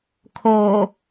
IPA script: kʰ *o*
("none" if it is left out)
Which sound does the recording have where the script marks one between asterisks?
o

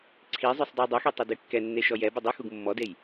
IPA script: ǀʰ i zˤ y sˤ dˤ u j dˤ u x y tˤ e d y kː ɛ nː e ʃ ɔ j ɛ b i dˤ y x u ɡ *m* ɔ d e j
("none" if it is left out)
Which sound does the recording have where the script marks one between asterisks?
mː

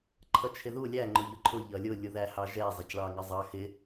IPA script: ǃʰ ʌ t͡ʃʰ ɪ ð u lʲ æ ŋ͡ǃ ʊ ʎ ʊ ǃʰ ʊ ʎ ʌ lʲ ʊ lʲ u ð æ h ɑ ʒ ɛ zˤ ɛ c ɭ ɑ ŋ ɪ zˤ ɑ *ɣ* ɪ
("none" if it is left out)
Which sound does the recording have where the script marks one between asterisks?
x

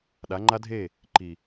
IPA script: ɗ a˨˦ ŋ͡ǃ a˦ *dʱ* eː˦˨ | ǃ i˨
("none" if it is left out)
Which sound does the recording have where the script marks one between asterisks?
dʱ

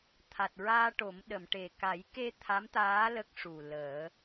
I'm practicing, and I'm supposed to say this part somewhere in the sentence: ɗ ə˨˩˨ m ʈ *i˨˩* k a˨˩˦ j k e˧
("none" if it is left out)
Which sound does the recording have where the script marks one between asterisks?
e˨˩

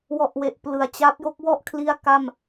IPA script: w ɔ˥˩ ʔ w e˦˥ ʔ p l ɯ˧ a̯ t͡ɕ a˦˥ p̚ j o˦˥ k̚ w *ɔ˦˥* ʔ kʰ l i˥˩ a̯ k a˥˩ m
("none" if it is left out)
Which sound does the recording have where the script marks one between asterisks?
ɔ˥˩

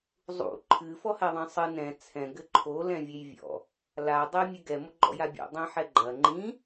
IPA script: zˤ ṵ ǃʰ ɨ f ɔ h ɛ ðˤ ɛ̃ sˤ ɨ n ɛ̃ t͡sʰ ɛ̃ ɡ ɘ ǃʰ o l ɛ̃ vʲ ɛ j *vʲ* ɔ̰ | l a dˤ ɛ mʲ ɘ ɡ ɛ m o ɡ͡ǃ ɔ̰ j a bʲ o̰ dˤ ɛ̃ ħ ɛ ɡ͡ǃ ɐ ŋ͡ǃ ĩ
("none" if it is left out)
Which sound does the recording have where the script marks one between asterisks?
vʲ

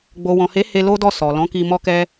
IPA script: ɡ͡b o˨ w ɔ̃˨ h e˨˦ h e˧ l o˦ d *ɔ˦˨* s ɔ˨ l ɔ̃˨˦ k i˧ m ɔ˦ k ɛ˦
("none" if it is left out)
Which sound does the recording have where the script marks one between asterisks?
ɔ˦˨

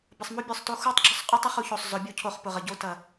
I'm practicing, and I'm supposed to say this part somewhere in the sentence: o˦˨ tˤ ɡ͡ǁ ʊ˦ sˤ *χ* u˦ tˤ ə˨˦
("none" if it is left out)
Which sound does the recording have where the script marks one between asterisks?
qʼ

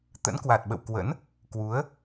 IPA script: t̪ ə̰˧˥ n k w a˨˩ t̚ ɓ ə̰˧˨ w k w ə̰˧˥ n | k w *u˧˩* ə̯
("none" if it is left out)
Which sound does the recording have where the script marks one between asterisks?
u˨˦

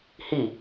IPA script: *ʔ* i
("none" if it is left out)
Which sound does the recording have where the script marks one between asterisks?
h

